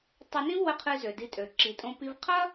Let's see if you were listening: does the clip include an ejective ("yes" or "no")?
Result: yes